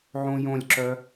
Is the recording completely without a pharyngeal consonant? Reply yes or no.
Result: no